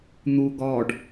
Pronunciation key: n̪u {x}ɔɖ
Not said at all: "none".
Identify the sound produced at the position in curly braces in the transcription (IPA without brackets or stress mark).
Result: ɡ